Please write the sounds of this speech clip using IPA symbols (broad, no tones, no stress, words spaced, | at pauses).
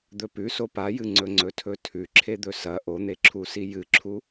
d̪ɵpʉso pajɨŋ͡ǀɵ ŋ͡ǀɵtʰɵtʰʉ ǁʰed̪ɵsɐ ʔon̪eǁʰusi jɨǁʰu